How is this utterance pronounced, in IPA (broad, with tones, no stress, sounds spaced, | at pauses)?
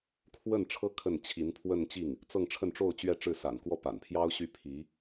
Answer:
kʰ w ə˥˩ n ʈ͡ʂʰ ɤ˥ kʰ ə˥˩ n t͡ɕʰ i˧˥ n pʰ w ə˥˧ n t͡ɕ i˥˩ ŋ | t͡s ɤ˥˧ ŋ ʈ͡ʂʰ ə˥˧ n ʈ͡ʂ o˥˧ ʊ̯ t͡ɕ ɥ ɛ˥˧ ʈ͡ʂ ɻ̩˥˩ s a̰˨˩ n k w ɔ˥ p a̰˨˩ n pʰ j ɑ˥ ʊ̯ ɕ y˥˩ pʰ i˧˥